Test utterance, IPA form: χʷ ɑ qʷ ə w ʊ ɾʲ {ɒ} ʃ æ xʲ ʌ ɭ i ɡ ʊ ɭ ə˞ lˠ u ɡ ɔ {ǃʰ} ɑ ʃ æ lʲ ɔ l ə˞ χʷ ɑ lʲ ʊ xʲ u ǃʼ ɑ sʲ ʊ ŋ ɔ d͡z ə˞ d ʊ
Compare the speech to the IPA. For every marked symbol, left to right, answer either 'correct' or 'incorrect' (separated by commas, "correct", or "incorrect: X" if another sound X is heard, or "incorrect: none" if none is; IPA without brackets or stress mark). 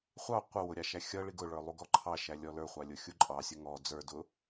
incorrect: ɑ, correct